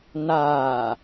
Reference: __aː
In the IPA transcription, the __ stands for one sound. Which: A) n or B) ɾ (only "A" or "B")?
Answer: A